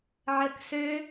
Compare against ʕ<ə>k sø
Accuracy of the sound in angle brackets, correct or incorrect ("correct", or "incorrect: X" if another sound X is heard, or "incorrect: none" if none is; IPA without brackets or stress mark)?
correct